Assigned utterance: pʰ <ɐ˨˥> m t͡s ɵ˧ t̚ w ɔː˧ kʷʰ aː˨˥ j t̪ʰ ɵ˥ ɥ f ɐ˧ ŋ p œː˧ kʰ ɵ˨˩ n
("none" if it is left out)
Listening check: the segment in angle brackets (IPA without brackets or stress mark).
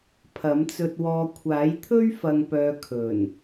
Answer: ɐ˨˥